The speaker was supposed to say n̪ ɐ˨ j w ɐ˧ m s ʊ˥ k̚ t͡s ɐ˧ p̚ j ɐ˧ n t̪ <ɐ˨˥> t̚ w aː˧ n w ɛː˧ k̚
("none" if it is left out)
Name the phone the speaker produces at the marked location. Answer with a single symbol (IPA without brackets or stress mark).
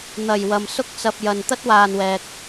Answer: ɐ˥